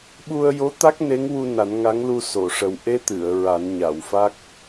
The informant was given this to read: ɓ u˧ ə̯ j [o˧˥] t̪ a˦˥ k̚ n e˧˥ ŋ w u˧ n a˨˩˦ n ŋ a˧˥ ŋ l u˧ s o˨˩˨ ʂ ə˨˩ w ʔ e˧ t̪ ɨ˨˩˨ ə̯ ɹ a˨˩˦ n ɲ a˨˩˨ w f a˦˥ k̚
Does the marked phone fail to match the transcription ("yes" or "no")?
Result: no